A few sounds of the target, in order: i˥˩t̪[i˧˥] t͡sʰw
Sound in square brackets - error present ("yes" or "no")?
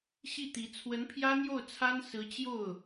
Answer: no